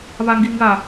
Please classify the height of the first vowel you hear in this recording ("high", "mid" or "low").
low